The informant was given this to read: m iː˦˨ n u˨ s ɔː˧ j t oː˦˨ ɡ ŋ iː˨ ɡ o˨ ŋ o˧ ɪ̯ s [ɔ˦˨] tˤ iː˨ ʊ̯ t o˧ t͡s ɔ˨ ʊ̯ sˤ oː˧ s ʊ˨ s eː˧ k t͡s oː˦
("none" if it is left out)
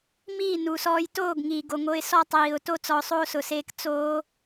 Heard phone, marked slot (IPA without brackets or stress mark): ɔ˦